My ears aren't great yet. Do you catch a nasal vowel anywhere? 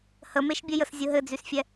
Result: no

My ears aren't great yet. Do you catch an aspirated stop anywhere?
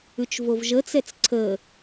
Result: yes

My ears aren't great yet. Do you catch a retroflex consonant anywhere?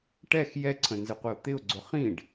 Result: yes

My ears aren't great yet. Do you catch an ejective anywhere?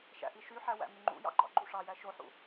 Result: no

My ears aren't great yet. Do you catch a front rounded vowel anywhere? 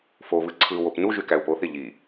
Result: yes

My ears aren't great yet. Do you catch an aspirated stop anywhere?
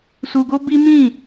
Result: no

